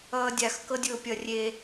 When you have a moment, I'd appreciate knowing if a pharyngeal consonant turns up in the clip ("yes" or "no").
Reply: no